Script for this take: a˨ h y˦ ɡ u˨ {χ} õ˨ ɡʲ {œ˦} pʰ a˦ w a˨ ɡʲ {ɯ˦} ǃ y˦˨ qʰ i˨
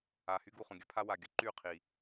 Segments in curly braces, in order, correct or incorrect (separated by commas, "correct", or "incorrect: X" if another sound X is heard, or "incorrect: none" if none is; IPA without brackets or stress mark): correct, correct, incorrect: ə˦